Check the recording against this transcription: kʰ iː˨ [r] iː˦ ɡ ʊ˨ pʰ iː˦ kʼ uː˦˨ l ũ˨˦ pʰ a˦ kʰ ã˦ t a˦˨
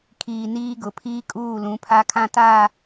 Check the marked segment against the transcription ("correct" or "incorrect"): incorrect